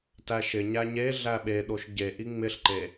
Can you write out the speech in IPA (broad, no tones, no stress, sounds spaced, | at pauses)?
t æ ʃ ɪ ɲ æ ɲ e ɮ æ ɓ e ɗ o ʃ ɟ e ʔ i ŋ͡m ɪ ɬ ǃ e